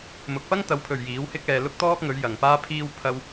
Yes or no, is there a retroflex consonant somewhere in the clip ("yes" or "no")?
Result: no